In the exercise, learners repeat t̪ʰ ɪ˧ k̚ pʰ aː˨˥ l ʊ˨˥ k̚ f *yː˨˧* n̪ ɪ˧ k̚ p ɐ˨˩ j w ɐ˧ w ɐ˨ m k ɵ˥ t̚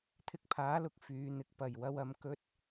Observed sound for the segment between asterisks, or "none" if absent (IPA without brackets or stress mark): yː˨˧